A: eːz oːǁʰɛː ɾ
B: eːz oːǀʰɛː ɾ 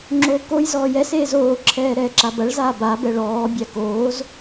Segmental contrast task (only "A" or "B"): A